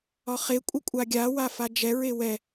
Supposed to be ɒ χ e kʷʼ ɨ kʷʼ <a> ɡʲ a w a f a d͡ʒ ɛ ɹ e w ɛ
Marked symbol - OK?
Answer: yes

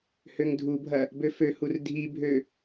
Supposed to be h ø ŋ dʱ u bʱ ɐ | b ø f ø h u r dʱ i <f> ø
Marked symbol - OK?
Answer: no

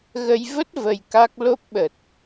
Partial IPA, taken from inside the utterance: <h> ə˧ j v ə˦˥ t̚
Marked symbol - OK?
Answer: no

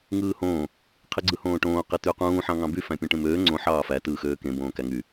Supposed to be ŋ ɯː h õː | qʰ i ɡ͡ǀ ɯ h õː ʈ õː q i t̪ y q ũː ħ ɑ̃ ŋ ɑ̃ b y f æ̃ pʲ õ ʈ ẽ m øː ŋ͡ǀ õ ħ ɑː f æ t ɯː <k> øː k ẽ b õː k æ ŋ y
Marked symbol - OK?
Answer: no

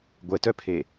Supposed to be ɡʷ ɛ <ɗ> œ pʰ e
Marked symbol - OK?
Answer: no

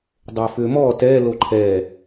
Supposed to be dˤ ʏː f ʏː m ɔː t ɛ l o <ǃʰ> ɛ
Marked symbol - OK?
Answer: yes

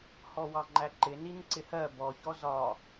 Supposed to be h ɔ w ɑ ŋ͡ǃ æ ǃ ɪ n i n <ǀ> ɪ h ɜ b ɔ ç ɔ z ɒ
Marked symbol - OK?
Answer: yes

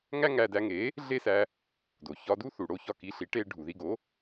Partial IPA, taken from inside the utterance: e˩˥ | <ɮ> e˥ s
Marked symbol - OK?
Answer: yes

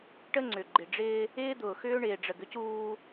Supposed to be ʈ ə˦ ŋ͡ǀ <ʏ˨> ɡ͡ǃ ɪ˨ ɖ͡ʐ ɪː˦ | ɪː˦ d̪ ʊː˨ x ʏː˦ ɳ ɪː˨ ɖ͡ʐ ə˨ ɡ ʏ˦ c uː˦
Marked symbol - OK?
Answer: yes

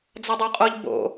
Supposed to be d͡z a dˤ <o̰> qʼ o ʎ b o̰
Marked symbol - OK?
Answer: no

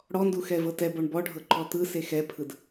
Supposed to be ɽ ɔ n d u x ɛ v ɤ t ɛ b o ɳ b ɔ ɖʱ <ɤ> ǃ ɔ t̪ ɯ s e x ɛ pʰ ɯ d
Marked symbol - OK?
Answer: yes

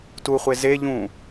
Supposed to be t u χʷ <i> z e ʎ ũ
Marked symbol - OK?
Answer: no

